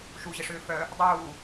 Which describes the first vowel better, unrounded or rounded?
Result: rounded